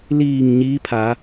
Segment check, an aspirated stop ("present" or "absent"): present